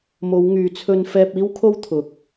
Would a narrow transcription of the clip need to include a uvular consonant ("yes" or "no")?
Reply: no